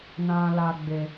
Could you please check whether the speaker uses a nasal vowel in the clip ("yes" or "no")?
yes